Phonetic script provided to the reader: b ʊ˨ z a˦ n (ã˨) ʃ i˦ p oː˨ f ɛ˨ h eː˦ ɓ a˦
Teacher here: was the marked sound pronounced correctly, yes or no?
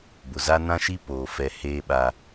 no